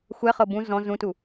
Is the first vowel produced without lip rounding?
yes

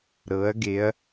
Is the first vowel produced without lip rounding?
yes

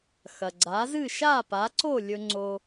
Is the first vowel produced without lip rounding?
yes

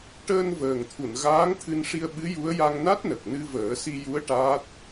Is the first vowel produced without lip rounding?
yes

